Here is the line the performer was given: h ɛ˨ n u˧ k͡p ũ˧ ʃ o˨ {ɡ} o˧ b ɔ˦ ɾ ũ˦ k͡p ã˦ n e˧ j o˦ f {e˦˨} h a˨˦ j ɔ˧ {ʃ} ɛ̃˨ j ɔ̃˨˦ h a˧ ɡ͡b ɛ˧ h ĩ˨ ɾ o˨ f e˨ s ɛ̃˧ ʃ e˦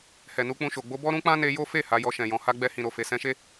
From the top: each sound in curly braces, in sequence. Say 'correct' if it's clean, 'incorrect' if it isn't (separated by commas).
incorrect, correct, correct